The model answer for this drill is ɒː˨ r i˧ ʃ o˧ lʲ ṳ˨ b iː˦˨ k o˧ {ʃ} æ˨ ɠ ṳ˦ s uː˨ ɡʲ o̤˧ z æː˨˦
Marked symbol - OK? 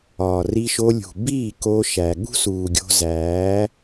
yes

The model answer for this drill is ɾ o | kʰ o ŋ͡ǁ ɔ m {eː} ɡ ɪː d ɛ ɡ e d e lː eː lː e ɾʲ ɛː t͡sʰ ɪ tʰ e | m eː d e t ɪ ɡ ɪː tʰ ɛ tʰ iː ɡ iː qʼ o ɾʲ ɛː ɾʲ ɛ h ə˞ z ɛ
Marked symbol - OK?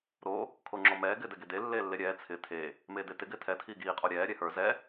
no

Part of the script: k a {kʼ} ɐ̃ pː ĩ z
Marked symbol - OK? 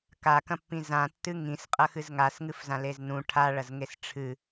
no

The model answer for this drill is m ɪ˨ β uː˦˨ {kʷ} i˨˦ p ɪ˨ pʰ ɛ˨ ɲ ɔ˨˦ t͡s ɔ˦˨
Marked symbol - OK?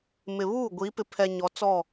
no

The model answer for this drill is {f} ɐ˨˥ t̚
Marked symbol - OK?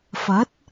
yes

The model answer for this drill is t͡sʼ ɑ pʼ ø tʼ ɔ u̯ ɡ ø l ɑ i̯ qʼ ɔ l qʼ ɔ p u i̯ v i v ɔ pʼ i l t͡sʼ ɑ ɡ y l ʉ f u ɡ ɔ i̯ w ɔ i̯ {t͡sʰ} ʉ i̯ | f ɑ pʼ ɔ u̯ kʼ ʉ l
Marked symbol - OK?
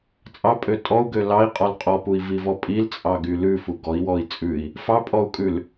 no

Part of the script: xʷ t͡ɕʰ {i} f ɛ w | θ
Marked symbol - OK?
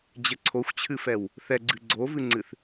no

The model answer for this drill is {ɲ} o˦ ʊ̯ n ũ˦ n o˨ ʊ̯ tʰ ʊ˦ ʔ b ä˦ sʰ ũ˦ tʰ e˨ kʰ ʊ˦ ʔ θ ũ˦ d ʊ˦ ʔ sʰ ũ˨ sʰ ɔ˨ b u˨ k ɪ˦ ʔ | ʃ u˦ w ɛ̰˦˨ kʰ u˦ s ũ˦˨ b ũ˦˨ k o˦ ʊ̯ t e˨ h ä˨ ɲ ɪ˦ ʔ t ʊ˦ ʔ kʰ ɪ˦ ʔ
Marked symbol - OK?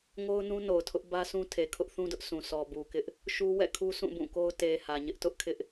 no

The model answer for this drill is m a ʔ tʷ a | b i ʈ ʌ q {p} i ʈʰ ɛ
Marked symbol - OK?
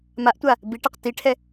no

